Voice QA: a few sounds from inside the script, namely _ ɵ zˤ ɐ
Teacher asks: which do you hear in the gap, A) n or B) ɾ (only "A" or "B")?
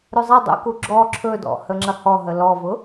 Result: B